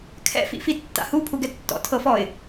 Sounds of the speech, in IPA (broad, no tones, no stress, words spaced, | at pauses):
kʰɛ̰fḭfitːa̰ hupʰu ɡɛtːɔ̰tʰɤfɔɪ̯